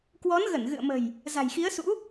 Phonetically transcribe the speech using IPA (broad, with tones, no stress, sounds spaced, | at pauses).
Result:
k w ɔ˨˦ n ɣ ə˧˩ n ɣ ɨ̰˧˨ ə̯ m ə̤˨˩ j | z a̤˨˩ j x i˨˦ ə̯ s ṵ˧˥